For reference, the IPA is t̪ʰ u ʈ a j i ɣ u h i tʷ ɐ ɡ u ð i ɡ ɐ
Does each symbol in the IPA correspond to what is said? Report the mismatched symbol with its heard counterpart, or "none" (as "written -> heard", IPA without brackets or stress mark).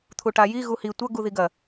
none